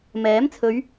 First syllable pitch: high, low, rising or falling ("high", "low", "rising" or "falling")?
rising